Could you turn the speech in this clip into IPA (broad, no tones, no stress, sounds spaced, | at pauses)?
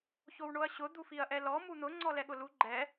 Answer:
ç o w ɳ o ɐ̯ ɕ ʊ d̪ u f i ɐ̯ ʔ ɛ l ɔ m u n̪ ʊ ŋ͡ǀ ɔ l ɛ ɠ ʊ l u ɡ͡ǃ ɛ